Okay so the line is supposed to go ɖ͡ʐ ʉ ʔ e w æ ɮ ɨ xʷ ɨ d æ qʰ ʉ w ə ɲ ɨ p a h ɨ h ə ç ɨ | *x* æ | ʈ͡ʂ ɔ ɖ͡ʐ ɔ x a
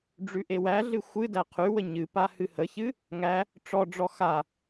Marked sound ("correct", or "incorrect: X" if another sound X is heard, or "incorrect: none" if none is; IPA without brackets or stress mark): incorrect: ŋ